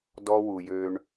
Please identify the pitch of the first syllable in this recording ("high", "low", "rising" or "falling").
high